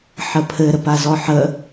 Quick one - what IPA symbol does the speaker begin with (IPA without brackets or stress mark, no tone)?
ħ